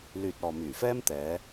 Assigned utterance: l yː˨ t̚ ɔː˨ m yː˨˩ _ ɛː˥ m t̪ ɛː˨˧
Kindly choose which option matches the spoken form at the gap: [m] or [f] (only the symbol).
f